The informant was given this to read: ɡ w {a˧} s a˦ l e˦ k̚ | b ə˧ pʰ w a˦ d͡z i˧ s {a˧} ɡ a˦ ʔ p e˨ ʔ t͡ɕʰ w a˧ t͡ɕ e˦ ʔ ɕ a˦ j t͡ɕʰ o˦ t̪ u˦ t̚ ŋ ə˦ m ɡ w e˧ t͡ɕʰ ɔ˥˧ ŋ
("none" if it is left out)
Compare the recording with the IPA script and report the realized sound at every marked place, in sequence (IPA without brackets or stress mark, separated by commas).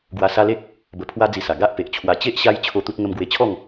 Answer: a˧, a˨˩